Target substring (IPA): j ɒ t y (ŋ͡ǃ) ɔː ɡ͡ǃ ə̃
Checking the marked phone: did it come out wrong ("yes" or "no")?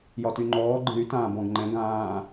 no